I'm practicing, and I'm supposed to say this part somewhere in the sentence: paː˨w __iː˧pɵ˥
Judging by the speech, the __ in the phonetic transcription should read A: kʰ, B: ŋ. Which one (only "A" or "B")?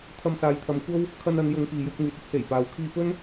A